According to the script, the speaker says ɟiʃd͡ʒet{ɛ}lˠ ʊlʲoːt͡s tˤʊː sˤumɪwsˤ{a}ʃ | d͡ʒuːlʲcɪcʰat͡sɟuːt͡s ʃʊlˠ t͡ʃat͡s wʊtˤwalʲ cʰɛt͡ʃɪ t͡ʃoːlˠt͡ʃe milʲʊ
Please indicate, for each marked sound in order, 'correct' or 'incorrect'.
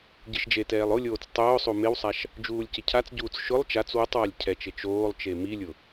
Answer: incorrect, correct

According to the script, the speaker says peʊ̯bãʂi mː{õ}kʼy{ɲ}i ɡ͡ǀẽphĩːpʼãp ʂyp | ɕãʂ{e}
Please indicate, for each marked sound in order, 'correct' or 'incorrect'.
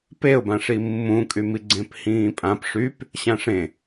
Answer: incorrect, incorrect, incorrect

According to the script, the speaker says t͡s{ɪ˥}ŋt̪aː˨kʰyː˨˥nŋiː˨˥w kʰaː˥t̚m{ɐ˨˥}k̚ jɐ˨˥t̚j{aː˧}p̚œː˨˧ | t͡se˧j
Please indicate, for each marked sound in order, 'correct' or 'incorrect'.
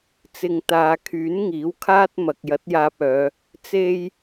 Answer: incorrect, incorrect, correct

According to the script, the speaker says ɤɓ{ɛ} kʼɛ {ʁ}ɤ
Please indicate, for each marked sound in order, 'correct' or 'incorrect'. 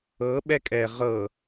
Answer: correct, correct

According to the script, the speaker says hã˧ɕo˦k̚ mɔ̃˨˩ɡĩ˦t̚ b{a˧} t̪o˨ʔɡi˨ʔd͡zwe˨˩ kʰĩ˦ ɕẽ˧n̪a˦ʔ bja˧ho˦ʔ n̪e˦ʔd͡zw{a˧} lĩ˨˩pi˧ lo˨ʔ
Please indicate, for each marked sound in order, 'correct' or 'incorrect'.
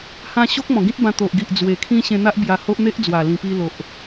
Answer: incorrect, incorrect

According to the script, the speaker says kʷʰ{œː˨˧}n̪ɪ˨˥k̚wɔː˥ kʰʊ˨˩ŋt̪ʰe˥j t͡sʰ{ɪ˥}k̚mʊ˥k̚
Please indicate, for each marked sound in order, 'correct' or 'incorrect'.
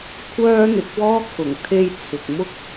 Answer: incorrect, incorrect

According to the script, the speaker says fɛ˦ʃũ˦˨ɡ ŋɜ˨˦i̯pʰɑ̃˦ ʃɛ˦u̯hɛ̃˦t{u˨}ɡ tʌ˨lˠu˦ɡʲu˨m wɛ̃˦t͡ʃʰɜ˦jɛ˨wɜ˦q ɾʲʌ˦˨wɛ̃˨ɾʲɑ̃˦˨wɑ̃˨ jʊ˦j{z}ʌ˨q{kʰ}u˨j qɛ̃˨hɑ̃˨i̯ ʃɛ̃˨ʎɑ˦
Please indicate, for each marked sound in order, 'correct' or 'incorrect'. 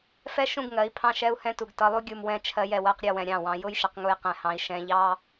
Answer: correct, incorrect, incorrect

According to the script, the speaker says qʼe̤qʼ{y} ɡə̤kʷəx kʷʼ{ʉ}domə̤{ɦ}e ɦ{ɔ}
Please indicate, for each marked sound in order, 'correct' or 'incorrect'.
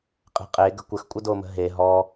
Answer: incorrect, incorrect, correct, correct

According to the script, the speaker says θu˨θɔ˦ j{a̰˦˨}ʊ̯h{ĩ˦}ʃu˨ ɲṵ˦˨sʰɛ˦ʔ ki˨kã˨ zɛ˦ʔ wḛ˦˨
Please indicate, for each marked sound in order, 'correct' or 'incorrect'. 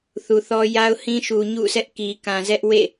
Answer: incorrect, correct

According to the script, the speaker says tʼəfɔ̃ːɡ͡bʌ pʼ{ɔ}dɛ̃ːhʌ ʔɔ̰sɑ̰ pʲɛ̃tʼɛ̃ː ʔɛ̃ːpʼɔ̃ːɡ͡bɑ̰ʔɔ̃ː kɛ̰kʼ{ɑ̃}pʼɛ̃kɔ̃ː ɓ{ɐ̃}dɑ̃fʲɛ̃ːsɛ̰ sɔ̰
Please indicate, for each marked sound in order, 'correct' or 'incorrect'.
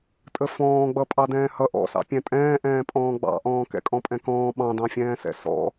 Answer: incorrect, incorrect, incorrect

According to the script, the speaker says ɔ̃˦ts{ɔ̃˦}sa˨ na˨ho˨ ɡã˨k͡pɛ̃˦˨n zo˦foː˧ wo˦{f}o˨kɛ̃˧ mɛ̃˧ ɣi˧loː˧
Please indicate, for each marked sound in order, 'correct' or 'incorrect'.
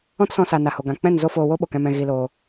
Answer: incorrect, incorrect

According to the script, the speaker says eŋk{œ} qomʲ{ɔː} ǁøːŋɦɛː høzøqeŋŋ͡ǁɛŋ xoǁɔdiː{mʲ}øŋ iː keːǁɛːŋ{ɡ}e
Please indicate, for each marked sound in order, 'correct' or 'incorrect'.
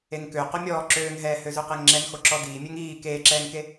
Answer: incorrect, correct, correct, incorrect

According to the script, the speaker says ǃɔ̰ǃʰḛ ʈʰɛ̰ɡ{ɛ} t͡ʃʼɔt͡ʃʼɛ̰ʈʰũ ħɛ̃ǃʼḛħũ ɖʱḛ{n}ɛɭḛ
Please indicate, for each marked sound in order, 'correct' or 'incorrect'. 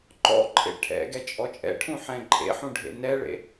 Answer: correct, correct

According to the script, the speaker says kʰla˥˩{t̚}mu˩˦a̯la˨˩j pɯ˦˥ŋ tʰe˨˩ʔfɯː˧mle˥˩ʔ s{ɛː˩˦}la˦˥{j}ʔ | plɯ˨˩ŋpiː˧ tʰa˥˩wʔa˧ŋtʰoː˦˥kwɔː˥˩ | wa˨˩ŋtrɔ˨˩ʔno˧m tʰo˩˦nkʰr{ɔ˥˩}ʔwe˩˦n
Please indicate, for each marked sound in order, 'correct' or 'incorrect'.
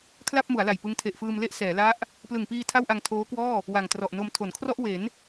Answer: incorrect, correct, incorrect, correct

